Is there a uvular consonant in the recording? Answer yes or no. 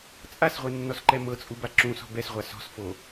yes